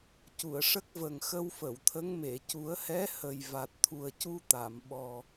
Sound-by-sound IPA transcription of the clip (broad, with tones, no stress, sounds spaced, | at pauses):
c u˨˩˨ ə̯ ʂ ə˦˥ k̚ v ə˨˩ ŋ x ə˧ w f ə˨˩˨ w t̪ʰ ə˧˥ ŋ m e˨˩˨ c u˨˩˦ ə̯ h ɛ˧˥ h ə˨˩ j v a˨˩ t̚ t̪ʰ u˨˩ ə̯ c u˧ t̪ a˨˩˨ m ɓ ɔ˨˩